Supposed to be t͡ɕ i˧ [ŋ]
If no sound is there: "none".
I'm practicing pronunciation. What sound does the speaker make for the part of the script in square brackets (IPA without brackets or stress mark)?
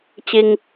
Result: ŋ